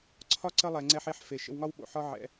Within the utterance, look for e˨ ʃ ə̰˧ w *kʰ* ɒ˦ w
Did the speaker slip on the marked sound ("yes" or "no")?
yes